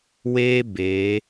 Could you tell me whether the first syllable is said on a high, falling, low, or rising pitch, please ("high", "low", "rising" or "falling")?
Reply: high